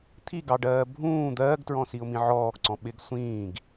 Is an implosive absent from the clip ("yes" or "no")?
no